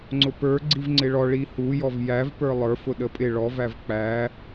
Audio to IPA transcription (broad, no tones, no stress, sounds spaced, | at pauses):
ŋ͡ǀ ʊ p ə˞ ɡ͡ǀ i v ŋ͡ǀ ɪ ɭ ɔ ɭ i h u j ɔ v j æ v p ə˞ lˠ ə˞ f ʊ ɗ ə pʼ ɪ ɭ ɔ v æ v k͡p æ